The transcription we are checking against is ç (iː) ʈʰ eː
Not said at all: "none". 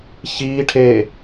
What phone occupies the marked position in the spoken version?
iː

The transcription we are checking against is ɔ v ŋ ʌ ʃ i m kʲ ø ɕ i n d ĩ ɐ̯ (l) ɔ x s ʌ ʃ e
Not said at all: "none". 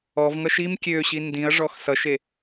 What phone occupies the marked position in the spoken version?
ʐ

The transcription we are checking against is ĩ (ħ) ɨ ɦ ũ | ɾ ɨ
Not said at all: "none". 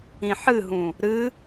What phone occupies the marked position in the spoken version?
ħ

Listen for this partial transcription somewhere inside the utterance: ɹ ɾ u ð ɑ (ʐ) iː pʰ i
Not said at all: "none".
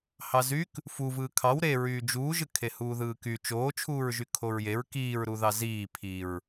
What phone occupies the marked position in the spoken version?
z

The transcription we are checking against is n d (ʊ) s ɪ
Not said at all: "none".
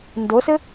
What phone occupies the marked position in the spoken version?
ʊ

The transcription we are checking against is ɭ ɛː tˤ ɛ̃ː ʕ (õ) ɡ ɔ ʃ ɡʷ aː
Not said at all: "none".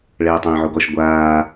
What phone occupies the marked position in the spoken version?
o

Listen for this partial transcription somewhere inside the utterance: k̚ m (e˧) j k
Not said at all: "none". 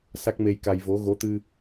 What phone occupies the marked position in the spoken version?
e˧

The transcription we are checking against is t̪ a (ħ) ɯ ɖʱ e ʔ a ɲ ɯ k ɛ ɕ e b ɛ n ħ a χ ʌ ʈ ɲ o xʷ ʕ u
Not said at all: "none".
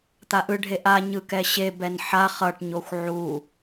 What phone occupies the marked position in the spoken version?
ʔ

